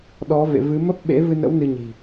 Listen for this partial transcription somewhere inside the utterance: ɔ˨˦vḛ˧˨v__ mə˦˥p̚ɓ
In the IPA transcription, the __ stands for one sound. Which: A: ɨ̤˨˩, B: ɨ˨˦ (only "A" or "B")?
B